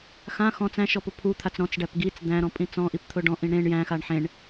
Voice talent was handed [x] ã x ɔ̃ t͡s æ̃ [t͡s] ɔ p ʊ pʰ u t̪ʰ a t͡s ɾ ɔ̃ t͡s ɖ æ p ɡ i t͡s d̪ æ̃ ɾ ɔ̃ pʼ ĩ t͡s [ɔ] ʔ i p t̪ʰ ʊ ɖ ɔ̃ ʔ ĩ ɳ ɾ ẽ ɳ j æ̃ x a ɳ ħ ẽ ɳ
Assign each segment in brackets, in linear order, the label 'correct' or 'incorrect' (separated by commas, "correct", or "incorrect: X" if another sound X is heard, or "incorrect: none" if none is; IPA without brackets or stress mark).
correct, incorrect: ʃ, incorrect: ɔ̃